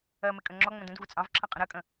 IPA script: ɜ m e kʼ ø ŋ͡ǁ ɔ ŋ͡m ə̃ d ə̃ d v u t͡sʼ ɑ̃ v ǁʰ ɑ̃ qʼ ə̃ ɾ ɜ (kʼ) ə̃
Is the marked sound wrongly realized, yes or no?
no